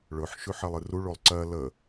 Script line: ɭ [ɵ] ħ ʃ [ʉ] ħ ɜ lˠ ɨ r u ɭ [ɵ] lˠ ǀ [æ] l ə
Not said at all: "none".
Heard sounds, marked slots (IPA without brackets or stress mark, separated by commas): ɵ, ʉ, o, ɜ